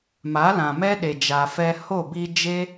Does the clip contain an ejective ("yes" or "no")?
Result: no